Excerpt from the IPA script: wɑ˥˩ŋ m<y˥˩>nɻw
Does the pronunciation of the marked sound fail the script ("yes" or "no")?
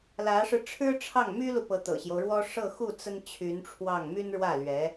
yes